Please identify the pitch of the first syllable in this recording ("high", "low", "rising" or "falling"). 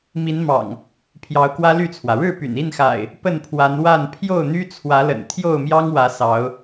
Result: rising